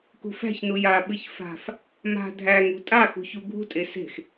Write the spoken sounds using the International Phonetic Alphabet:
kṳfæ̤çnu jaɓɨç fa̤f | ma̤ dʱæŋṳ tʼaxṳçu ɡʱṳtʼe se̤x

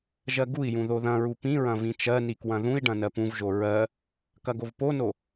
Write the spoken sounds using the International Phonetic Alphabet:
ʒɜɡui̯jũ ðoðɐ̃ɹu pĩɹɐ̃ vĩt͡ʃɜni kwɐ̃ðũi̯ɖɐ̃ nɜpũvʒo ɹɜ | kɐɡovpono

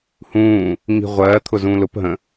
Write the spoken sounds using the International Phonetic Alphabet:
hũː | ŋi̤ʁʷɜː t̪ʰʊzũːlʊp ɦə̃

